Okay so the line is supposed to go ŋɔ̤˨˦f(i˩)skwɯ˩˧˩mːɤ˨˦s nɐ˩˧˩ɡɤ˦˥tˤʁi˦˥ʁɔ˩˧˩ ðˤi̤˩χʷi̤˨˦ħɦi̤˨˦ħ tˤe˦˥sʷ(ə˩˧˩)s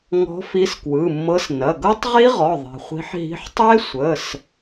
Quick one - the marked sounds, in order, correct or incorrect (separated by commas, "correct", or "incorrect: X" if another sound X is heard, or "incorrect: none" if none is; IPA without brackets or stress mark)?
incorrect: i˨˦, correct